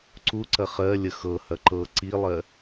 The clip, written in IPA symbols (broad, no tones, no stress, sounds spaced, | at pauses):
ǀ u ǀ ɐ χ ɜ lʲ ə x ɤ h ɐ ǃ ɤ ǀ i lˠ ɜ